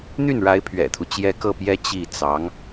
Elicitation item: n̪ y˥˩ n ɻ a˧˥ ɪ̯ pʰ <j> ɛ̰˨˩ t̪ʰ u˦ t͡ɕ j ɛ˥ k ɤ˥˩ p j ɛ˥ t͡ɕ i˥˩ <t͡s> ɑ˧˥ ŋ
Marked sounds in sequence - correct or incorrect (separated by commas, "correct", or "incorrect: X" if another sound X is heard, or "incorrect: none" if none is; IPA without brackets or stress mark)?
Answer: incorrect: ɥ, correct